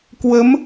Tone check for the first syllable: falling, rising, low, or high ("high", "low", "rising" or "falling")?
rising